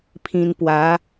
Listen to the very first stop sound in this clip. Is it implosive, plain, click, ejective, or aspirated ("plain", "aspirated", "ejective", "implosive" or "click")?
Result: aspirated